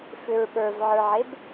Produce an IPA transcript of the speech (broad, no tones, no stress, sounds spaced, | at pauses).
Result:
f ʏ ɹ ɓ ə˞ v ʕ ə˞ ʕ e b